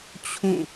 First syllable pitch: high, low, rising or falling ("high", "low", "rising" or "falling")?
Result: falling